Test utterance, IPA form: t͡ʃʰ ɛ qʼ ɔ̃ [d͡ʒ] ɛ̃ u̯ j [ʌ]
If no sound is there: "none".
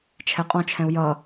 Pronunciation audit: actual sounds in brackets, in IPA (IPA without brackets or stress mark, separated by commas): t͡ʃʰ, ʌ